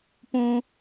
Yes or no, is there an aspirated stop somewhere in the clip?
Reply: no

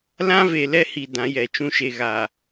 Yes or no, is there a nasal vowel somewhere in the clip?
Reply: yes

